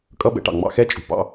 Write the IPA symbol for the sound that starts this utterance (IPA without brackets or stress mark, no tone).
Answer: kʼ